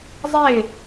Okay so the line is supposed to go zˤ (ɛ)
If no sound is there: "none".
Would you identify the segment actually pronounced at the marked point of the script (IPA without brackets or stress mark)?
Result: e